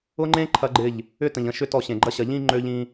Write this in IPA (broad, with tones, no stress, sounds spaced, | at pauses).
ʊ˦ ŋ͡ǃ ẽ˦ ǃʰ ɐ˦ ɡ͡ǃ ɪ˦˨ ʎ | ʏ˦ t ə̃˨ ʎ ə̃˦˨ ʃ ʏ˦ t ɔ˦˨ ɕ ẽ˨ ɡ͡ǃ ɐ˦ ɕ ɐ˨ ʎ ĩ˦ ŋ͡ǃ ø˦ ʎ ĩ˦